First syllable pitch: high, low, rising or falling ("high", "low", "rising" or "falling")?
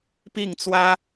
falling